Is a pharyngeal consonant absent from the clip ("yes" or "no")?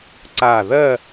yes